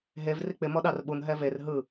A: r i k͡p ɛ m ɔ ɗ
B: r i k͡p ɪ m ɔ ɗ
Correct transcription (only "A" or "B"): B